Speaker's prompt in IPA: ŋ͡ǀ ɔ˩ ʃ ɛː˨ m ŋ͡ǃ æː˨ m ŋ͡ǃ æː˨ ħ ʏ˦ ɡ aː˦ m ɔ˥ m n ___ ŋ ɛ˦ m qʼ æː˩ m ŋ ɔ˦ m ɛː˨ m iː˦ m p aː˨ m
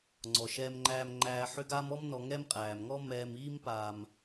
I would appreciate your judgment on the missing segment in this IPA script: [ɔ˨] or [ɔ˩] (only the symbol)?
ɔ˨